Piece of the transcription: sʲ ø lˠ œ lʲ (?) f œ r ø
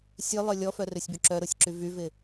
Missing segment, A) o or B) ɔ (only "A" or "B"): B